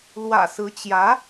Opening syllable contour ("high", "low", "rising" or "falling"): low